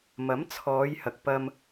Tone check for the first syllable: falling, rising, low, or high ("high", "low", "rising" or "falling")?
rising